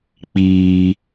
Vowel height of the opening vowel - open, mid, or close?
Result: close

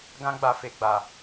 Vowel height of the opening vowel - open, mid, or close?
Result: open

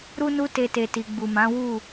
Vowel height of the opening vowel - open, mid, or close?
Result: close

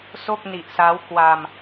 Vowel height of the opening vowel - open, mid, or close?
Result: mid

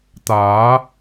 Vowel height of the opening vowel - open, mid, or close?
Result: open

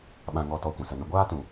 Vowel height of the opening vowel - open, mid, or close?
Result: open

